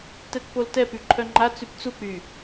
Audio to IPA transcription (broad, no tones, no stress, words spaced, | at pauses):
tɛtpoltɛ pyǃʰœŋ͡ǃa t͡sypt͡suk͡py